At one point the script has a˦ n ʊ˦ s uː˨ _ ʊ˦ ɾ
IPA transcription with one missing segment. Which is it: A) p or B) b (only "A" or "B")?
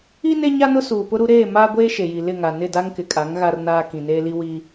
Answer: A